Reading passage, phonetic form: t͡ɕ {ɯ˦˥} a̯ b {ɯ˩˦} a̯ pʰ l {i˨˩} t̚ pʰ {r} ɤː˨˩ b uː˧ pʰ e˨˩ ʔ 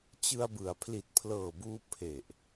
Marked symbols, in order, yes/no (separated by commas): no, yes, yes, no